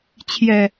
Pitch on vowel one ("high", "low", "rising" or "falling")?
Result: low